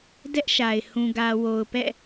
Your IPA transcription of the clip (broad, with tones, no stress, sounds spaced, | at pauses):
d ɛ˦ ʔ ʃ a˨ ɪ̯ h ũ˨ ɡ ä˨ w o˨ ʊ̯ p ɛ̰˦˨